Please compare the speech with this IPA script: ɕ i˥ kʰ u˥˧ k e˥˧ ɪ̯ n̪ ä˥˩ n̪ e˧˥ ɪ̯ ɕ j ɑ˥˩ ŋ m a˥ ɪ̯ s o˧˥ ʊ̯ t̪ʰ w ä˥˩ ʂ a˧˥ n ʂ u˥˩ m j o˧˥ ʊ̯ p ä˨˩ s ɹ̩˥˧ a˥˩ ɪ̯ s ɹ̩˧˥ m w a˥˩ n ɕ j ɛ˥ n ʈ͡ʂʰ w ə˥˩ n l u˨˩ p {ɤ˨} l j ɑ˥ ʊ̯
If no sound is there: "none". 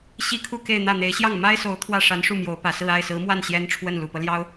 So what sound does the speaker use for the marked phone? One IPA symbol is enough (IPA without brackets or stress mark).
ɤ˦